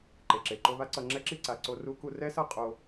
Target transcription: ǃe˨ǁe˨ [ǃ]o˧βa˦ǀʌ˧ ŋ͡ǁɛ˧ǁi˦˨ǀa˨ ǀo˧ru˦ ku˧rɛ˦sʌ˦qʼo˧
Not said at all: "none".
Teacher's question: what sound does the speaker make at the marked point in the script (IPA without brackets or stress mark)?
ǃ